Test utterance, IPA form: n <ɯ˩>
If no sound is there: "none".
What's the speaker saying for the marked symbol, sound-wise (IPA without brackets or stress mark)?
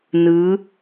ɯ˩˧